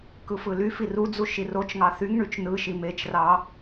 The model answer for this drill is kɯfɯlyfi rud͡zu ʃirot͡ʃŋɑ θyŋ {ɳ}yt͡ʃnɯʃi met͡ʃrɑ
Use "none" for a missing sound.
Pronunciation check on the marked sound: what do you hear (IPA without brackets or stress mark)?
ɳ